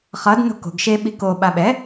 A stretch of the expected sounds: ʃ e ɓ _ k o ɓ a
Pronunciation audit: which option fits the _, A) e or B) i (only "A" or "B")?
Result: B